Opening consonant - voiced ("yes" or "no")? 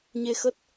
yes